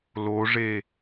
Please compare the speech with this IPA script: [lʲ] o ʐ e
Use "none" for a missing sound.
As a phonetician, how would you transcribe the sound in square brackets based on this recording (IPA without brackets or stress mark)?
l